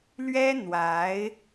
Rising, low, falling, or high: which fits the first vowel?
high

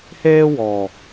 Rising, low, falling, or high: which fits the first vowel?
high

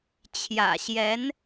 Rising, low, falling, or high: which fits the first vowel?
low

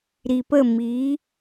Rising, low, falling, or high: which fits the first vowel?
low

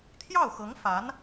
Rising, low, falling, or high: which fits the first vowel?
falling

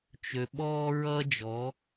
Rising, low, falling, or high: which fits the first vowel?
low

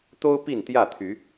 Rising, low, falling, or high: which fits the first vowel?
high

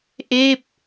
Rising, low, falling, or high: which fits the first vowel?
falling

